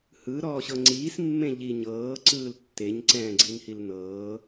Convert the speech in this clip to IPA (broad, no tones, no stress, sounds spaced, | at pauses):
h ɯ ɾ ɔː ɕ ɤ ŋ͡ǀ iː s mː ẽ ʎ i ɲ ɤː ǀ ɯː l tː e ɲ ǀ ɛ̃ː ɡ͡ǀ i n h i l n ɤː